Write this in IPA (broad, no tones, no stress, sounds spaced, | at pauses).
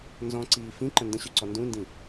n z ɔ̃ ǀ iː f ĩ ǃ ə̃ n d ə̃ ɕ y ǀ ɔ n d ũ n d ĩ